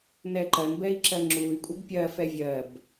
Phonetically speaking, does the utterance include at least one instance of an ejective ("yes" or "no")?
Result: yes